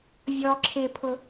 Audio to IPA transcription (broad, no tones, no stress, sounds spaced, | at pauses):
vʲ ɔ ǁʰ ɪ pʰ ʊ